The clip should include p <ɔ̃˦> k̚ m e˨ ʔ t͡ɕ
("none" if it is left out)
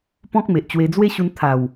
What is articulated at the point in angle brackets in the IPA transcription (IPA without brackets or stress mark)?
ɔ̃˦